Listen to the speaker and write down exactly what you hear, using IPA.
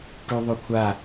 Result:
ʈ ʉ ðˤ o kʷʰ a

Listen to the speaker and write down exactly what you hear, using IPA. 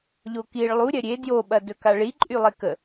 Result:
ʎ o k i ɭ lˠ u ɾʲ ɐ ɾʲ e d j o ɓ ɐ d ɵ k a ɭ i ǃʼ y lˠ e k ə

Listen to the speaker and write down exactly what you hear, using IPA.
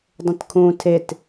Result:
dˤ ə̃ t kʰ ũ tʰ e t

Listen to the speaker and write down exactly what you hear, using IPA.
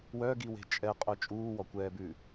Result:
w œ ɡ i w e̤ t͡ʃʼ ɛ qʼ œ t͡ʃʼ uː w ɔ kʷ ɛː b ʉː

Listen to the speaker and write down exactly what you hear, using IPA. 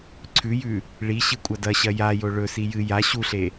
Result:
ǀʰ ʉ j ʉ | ɭ i ɕ ɨ kʷʼ ɐ d ɐ ɕ ɐ j a j o ɭ ɵ s i j ɨ j a ɕ u ɬ e

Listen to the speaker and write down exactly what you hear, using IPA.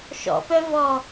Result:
ʃ ɔ̰ p œ v ɔ

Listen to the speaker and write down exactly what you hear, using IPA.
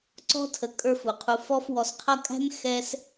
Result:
ǀ ɔ̤˥ tʰ ə˨ kʼ ə˞˦ f u˩ qʰ u˨ f ɔ˦ f w ɔ˨ s qʰ ʌ˦ kʼ æ̤˥ n x ɛ˦ s

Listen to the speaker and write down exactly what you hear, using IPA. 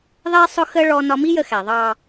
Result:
ðˤ ɛ˥ sˤ ʊ˥ x ə˥ ɭ ɔ˧ n ɒ˧ m i˥ j ə˧ x æ˩ ðˤ ɑ˥˧

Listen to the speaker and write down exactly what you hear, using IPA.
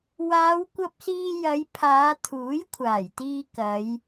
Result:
w aː˨˧ w kʷ ɐ˧ p̚ s iː˧ j ɐ˨˧ j pʰ aː˨˧ t̪ʰ uː˨˥ j kʷʰ aː˨˩ j t̪ iː˧ k ɐ˨˧ j

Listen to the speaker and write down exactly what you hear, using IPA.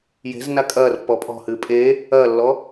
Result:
j e̤ z n a kʼ ɐː r pː ɔ pʼ ɔ̤ h ɨː pʼ e | ɐː lː ɔ

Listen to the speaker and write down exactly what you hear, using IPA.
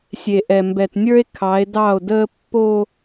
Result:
sʲ e˨ ʔ ɛ˨ m b ɛ˨ t nʲ ə˞˦ e̯ kʰ ɑ˨˦ e̯ d ɑ˦˨ o̯ d əː˦ pː o˦

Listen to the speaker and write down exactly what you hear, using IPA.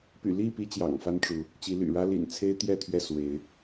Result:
p y̰˨˩ l i˥˨ p i˨˦ t͡ɕ j ɑ̰˨˩ ŋ f a˦ n ʈ͡ʂ u˨˦ | t͡ɕ i˨˦ l y̰˨˩ ɻ ä˦ l ḭ˨˩ n t͡sʰ e˦ ɪ̯ t̪ j ɛ˥˨ t̪ʰ ɥ ɛ˥˨ s w e˨˦ ɪ̯

